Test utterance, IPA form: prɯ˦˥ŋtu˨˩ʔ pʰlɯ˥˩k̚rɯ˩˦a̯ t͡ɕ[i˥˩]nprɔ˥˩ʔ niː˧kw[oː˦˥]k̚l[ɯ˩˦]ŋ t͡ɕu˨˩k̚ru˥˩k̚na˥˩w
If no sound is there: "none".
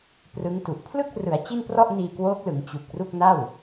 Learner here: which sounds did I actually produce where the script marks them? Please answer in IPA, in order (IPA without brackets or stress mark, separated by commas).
i˥˩, oː˦˥, ɯ˩˦